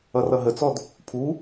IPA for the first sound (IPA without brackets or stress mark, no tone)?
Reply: ʌ